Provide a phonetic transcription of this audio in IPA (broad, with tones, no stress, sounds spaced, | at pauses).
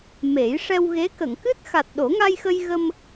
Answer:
m e˨˩˦ j ʂ ɛ˧ w ɣ e˧˥ k ə˨˩˨ ŋ k ɨ˦˥ t̚ x a˨˩ t̚ ɗ o˨˩˦ ŋ a˧ j x ə˧ j ɣ ə˧ m